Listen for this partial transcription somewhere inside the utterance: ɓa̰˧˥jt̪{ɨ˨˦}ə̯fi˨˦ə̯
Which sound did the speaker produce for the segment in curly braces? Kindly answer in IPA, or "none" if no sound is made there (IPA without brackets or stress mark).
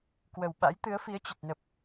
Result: ɨ˨˦